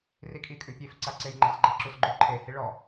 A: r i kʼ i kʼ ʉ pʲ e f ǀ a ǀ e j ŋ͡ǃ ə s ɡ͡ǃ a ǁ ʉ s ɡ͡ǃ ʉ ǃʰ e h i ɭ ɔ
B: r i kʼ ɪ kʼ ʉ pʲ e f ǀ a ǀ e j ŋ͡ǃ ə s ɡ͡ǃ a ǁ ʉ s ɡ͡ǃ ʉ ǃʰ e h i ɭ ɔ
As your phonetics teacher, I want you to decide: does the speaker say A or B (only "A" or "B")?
A